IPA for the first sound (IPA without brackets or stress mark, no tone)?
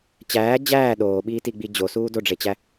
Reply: t͡ɕ